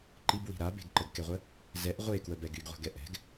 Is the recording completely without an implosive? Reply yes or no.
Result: yes